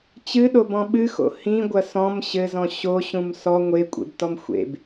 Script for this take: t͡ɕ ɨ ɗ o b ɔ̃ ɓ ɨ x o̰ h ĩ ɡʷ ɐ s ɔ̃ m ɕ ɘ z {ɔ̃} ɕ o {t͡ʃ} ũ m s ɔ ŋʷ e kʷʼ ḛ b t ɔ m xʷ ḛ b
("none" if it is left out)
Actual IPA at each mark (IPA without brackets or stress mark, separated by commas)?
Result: ɔ̃, ɕ